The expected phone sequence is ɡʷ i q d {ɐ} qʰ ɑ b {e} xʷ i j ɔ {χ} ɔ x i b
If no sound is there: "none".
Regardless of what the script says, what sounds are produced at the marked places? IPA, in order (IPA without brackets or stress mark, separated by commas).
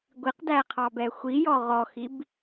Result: æ, ɛ, ʁ